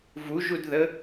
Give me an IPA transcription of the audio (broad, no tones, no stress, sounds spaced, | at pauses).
v u ʒ u d ð ə